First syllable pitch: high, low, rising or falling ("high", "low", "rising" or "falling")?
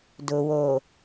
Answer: low